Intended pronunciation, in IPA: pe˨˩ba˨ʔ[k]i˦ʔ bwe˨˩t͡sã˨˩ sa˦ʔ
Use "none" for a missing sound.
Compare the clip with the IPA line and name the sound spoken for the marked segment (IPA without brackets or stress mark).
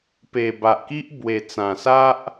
k